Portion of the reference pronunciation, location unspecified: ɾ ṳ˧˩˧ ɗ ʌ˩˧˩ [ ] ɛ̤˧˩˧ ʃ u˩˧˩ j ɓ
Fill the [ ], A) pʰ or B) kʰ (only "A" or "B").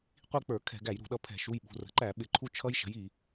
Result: A